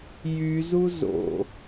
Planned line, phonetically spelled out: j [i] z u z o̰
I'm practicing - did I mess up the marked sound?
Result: yes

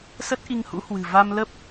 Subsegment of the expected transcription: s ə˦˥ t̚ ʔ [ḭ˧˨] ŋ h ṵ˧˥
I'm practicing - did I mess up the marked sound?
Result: yes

